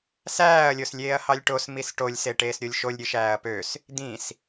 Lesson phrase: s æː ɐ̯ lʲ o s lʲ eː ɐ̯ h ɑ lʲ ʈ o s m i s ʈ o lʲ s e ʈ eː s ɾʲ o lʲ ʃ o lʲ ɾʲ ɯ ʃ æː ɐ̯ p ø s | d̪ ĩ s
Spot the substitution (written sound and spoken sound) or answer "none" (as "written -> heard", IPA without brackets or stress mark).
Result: none